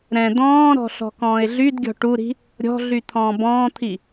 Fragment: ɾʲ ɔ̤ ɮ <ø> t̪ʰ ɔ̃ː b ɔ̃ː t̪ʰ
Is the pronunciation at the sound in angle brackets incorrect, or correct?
incorrect